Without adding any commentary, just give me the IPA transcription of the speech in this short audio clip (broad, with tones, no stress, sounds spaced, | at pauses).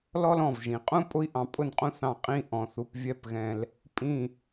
l ɔ˥ l ɔ̃˧˩ v ʒ ĩ˩˧ qʼ ũ˥ pʼ ʊ˥ i̯ ʔ ɑ̃˧ pʼ ʊ˥˧ n qʼ ũ˥ θ ɑ̃˧˩ qʼ ĩ˥˧ ʔ ɔ̃˧ θ u˧ p vʲ ɛ˥˧ p ɣ ɛ̃˧ l | pʼ ĩ˧˩